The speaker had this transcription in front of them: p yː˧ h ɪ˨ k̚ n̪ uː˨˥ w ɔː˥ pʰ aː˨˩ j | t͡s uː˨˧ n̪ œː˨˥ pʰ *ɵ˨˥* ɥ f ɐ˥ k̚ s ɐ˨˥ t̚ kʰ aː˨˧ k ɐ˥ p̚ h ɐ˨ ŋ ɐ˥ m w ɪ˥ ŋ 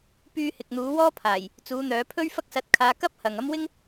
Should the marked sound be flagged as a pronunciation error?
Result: yes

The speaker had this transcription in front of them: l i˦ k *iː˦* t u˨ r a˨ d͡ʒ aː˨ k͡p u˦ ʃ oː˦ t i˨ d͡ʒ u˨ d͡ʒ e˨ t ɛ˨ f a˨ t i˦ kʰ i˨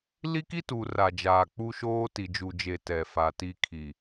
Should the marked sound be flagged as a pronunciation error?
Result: yes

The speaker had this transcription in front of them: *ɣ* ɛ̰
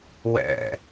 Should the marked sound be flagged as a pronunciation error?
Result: yes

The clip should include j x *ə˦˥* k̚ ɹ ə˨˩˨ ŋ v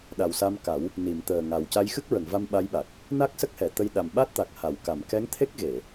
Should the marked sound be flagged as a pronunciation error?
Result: yes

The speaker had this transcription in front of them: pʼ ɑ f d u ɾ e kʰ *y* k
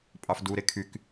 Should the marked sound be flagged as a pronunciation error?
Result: no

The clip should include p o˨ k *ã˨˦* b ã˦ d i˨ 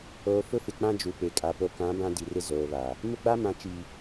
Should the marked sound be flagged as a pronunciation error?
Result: no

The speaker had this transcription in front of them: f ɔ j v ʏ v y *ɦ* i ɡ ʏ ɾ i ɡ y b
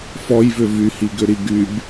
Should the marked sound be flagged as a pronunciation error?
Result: yes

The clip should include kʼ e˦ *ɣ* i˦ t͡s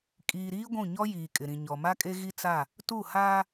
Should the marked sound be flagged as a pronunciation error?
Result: no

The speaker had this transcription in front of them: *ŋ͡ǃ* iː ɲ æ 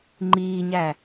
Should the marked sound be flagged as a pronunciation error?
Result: no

